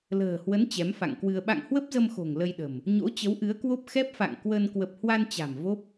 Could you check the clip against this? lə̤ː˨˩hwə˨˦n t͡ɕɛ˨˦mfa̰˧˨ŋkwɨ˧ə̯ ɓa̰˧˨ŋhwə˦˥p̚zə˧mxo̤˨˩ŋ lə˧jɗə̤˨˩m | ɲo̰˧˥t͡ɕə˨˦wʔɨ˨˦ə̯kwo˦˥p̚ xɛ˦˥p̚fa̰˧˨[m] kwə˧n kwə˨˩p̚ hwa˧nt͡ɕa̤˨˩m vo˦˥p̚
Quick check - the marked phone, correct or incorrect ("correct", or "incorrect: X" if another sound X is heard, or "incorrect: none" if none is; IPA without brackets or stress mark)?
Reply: incorrect: ŋ